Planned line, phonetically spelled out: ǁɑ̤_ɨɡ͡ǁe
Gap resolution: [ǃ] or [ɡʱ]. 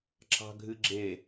ɡʱ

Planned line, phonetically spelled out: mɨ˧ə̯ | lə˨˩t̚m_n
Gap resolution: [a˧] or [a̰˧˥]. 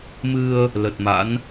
a̰˧˥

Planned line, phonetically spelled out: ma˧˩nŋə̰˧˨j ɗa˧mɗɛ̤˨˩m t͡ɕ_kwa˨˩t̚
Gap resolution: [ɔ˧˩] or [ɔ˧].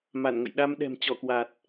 ɔ˧˩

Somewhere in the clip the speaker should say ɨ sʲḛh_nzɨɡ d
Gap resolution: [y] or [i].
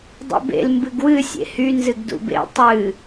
y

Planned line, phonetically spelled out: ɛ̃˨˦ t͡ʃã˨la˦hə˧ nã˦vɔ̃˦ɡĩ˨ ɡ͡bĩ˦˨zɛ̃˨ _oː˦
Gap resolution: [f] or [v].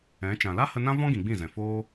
f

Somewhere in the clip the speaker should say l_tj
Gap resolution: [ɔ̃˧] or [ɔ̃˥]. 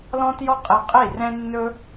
ɔ̃˥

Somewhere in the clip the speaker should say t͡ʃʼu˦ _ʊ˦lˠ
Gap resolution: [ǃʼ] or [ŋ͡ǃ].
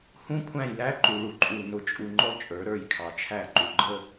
ŋ͡ǃ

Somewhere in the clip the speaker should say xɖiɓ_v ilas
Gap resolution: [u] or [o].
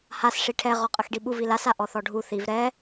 u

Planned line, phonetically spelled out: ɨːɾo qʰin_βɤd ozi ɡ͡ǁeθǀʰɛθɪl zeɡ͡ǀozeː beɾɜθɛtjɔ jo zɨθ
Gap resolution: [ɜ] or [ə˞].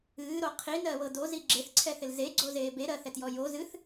ɜ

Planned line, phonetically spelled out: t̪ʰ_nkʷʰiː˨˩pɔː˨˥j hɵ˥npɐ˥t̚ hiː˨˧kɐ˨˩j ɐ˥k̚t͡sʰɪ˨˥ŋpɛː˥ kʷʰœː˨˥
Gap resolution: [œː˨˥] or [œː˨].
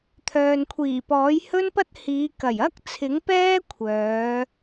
œː˨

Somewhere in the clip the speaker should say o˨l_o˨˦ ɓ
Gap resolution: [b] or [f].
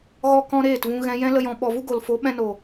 f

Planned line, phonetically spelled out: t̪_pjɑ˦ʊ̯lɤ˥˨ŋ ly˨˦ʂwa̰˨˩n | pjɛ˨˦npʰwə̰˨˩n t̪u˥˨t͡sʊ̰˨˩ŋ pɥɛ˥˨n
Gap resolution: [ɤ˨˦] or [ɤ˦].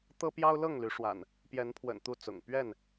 ɤ˦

